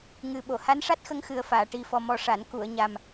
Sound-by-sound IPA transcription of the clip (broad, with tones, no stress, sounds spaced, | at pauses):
ŋ ɨ˨˩ ɓ o˨˩˨ h a˧˥ n ʂ a˦˥ t̚ x ə˧ ŋ x ɨ˨˩ ə̯ f aː˨˩˨ ʈ i˨˩ f ɔ˨˩ m ɔ˨˩ ʂ a˨˩˨ n k u˨˩˨ ə̯ ɲ a˨˩ m